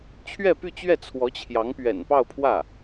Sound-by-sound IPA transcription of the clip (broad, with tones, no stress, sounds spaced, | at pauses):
t͡ɕʰ ɥ ɛ˥˧ p y˥˧ t͡ɕ ɥ ɛ˥˩ t͡sʰ w ɔ˧˥ t͡ɕʰ j ɑ˧˥ ŋ p ɥ ɛ̰˨˩ n p ɑ˥˧ ʊ̯ pʰ w ä˥˩